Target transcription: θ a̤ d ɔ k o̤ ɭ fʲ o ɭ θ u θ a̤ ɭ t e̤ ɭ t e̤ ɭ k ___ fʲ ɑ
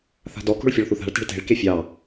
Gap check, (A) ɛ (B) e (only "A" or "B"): B